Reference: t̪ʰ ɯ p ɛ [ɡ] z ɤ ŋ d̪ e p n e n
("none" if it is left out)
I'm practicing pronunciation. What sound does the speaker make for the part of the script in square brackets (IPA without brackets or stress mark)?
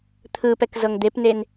k